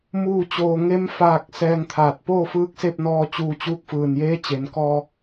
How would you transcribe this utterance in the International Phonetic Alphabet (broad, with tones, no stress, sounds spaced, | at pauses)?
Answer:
m uː˥˨ t͡ɕ oː˧ ŋ e˧˥ m f aː˧ k̚ s ɛː˧ ŋ t̪ʰ aː˧˩ t̚ p oː˥˨ f ɯː˧˥ k̚ s e˥˨ p̚ n ɔː˧ t͡ɕ uː˧ t͡ɕ uː˧˥ k̚ f ɯː˧˩ n j eː˧˥ t͡ɕ e˩ n k ɔː˧